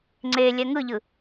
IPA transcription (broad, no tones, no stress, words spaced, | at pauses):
ŋ͡ǀe lʲɛŋɯʎɯ